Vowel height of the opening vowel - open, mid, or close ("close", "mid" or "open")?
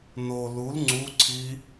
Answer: mid